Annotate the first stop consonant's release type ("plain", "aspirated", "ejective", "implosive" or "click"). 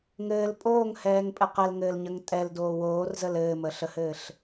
ejective